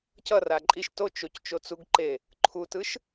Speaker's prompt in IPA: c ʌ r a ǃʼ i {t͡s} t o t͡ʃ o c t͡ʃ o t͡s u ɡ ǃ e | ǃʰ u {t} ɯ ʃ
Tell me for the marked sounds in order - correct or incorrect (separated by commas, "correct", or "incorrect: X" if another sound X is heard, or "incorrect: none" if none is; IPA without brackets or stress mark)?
incorrect: ʃ, correct